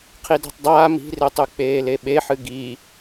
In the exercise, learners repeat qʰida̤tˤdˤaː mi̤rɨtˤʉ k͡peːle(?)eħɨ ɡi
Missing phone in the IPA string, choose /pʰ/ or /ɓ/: ɓ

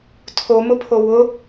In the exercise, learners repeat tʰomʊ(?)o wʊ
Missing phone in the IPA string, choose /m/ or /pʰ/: pʰ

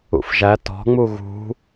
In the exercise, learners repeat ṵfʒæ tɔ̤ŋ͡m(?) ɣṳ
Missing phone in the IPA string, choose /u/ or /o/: u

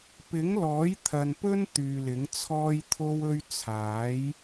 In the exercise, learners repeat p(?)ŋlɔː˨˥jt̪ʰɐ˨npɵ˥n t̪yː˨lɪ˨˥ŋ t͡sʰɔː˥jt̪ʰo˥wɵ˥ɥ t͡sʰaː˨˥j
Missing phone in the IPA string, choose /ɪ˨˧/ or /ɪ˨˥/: ɪ˨˥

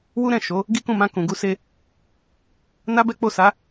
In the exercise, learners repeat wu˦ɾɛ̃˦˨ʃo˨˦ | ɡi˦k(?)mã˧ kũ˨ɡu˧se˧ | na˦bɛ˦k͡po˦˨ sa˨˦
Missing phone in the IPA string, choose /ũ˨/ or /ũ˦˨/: ũ˦˨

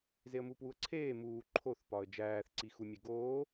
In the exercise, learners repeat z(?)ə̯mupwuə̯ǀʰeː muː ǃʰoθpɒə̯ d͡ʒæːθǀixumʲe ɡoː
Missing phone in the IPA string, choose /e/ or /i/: e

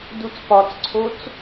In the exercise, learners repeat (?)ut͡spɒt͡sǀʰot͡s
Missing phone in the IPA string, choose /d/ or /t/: d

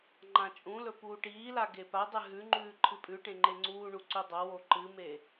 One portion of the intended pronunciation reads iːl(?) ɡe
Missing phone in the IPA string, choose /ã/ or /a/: a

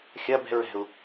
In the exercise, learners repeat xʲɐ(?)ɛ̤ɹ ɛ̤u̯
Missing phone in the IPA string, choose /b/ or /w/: b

